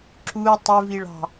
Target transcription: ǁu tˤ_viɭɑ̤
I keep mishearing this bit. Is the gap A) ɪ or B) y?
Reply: A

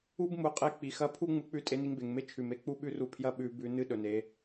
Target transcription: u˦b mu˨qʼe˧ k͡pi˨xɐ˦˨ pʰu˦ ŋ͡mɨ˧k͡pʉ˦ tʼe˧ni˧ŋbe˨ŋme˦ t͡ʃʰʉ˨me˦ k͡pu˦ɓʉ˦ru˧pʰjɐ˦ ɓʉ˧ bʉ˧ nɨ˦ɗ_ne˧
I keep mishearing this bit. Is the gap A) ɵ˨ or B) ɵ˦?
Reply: A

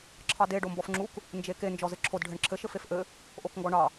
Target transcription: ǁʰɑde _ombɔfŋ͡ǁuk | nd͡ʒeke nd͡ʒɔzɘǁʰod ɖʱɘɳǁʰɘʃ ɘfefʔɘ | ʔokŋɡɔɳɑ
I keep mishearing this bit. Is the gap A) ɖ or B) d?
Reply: A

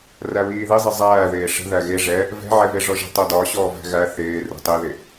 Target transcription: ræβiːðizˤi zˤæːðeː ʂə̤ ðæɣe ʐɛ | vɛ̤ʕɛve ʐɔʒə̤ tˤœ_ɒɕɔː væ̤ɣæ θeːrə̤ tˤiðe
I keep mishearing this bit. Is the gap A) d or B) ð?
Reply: A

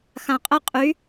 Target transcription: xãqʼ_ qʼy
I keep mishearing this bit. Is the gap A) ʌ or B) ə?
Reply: B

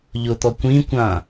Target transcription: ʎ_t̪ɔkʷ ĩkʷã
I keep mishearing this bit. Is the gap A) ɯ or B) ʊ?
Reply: B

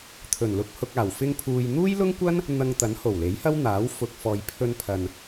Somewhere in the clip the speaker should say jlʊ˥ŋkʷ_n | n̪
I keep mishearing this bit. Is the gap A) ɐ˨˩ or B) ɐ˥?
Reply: B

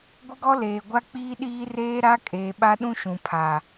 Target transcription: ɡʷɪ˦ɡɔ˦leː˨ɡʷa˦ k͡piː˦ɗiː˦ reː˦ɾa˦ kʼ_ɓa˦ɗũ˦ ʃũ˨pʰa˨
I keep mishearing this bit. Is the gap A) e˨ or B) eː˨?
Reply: B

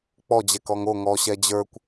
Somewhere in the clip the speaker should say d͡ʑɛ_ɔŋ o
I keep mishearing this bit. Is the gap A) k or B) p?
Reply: A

